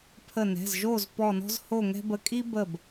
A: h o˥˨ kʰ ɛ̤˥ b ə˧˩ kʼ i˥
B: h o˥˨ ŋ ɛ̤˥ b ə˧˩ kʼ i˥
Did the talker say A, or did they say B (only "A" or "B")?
B